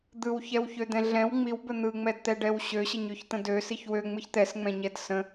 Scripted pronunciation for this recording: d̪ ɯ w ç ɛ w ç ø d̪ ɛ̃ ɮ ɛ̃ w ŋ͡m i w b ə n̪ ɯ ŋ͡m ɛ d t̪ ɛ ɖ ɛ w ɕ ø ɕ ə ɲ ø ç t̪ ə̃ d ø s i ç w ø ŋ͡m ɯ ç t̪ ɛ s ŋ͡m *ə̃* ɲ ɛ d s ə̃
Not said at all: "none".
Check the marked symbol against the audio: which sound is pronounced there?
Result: ɛ̃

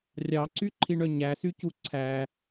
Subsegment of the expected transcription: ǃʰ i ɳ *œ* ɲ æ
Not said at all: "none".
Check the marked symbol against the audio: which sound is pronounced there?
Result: œ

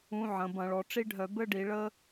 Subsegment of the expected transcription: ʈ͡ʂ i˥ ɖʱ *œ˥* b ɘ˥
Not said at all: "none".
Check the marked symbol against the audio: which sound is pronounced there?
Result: œ˧˩˧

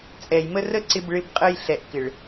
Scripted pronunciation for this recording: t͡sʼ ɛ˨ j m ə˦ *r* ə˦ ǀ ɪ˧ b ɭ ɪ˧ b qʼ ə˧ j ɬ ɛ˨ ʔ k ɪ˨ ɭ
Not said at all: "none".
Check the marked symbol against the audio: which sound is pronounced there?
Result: r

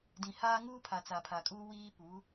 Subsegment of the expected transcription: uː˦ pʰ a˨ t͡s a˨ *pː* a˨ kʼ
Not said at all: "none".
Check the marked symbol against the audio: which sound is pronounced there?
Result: pʰ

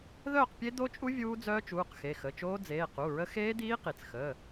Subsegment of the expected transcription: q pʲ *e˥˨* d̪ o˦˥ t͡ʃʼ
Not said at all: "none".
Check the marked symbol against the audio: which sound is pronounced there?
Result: e˦˥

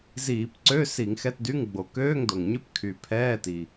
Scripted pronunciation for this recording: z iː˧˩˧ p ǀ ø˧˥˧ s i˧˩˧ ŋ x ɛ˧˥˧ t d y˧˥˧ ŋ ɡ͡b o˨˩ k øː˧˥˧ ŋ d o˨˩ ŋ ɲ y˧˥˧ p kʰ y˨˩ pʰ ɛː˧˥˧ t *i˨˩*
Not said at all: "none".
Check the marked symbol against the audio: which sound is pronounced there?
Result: i˨˩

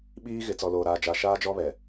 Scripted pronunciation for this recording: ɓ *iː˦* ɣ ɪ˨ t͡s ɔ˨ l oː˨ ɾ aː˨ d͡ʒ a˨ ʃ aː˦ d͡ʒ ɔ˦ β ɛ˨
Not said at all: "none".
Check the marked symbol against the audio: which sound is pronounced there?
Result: iː˦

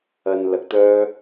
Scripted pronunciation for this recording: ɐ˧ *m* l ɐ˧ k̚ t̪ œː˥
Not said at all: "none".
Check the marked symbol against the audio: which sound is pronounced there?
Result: n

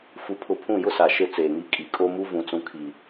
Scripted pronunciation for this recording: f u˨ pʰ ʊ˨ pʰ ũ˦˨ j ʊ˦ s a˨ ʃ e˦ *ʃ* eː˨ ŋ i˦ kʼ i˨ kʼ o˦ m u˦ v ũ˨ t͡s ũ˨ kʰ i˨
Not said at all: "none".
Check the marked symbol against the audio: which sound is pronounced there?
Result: t͡s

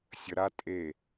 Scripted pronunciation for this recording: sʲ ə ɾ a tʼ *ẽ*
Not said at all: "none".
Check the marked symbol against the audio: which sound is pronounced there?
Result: e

